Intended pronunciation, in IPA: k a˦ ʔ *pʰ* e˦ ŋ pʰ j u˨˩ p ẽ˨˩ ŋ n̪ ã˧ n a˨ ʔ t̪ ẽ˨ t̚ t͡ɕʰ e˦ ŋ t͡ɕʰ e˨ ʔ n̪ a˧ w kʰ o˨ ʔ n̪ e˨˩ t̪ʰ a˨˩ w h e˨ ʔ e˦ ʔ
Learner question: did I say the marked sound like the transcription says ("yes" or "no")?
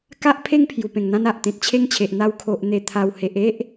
yes